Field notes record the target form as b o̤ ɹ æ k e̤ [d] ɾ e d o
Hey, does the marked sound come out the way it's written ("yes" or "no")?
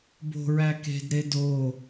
yes